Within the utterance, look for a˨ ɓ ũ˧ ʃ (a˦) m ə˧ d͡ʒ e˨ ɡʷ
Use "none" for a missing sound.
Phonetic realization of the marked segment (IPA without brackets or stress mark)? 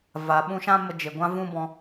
ã˦